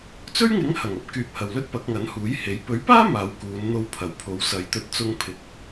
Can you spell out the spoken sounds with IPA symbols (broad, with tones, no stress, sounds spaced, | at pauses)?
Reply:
t͡s ɵ˥ ɥ ŋ ɪ˨˥ ŋ h ɐ˨˩ ŋ ɐ˥ p̚ k yː˨ p̚ h ɐ˨˩ w l ɵ˥ t̚ p ɐ˨˥ k̚ ŋ ɐ˨˥ n h uː˨˥ j h e˨˥ j p ɵ˨˥ ɥ p aː˥ m aː˨˧ w k uː˨˧ n n̪ o˧ w pʰ ɐ˨˩ w pʰ o˨˧ w s ɐ˨˧ j t̪ ɵ˧ t̚ t͡s ʊ˧ ŋ pʰ ɪ˨ k̚